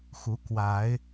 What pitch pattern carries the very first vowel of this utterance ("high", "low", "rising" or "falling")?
rising